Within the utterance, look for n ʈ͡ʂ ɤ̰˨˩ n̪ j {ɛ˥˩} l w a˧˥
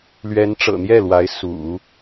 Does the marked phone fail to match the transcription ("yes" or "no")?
no